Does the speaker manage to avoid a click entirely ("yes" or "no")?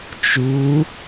yes